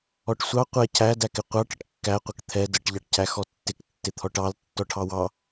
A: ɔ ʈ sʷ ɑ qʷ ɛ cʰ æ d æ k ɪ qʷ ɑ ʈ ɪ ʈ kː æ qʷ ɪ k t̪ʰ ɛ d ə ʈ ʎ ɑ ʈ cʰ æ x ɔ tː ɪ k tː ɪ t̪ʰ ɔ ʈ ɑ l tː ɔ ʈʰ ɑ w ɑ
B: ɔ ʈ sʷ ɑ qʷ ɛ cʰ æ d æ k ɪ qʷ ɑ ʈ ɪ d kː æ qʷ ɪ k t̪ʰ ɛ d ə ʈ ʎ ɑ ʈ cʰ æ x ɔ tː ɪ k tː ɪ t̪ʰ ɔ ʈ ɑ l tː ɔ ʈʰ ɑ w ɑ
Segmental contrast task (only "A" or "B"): A